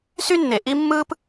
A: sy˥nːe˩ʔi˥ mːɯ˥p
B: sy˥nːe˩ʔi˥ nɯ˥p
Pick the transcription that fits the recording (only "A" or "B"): A